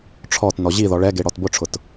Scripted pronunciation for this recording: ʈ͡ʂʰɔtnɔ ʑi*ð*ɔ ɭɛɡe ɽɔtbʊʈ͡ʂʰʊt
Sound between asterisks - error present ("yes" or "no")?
no